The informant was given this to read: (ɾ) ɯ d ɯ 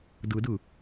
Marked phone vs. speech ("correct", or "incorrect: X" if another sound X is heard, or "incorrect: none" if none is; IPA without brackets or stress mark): incorrect: d